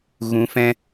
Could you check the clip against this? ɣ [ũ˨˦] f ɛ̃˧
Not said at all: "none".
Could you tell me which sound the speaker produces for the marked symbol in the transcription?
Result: ũ˨˦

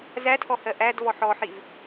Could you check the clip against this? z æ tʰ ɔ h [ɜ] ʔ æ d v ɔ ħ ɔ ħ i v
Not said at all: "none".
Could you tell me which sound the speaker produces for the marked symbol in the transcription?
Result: ɜ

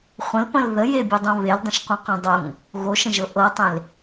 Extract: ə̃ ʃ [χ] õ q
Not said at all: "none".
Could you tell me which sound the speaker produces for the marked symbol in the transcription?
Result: q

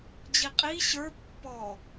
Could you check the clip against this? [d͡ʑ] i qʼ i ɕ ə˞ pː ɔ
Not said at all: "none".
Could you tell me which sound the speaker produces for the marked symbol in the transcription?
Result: d͡ʑ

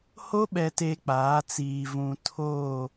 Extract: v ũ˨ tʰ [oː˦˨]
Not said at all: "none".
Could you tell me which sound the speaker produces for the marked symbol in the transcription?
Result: oː˦˨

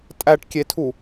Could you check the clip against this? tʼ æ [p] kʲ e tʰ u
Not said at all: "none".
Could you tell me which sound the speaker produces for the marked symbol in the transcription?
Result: ʈ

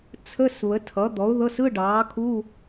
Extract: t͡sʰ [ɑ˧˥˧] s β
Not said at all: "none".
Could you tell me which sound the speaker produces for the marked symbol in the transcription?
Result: ə˧˥˧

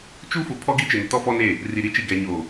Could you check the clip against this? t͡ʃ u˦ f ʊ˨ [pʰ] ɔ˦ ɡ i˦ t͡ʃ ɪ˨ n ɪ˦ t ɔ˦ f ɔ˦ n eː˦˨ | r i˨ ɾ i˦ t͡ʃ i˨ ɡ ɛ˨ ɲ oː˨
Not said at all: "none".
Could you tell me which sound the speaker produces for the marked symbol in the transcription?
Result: pʰ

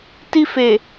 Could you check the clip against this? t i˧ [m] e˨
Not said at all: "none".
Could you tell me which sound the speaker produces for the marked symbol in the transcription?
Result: f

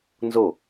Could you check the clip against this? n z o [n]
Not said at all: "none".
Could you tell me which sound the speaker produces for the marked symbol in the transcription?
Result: none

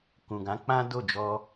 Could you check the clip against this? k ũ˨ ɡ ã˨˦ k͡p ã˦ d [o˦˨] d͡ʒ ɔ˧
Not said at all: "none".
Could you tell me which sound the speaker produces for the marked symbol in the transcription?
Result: o˦˨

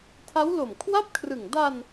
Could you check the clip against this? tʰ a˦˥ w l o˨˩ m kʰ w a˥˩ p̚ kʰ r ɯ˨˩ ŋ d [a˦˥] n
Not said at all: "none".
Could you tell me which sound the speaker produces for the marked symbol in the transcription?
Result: a˧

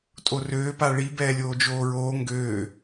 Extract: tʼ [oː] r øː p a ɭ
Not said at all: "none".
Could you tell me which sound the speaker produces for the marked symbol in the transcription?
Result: o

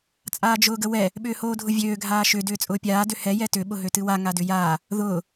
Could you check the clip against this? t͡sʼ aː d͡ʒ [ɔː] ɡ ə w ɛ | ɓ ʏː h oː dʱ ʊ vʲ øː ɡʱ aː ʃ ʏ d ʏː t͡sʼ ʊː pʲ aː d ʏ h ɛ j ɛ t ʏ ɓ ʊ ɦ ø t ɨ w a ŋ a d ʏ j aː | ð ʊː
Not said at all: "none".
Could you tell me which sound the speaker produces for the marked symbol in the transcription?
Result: ʊː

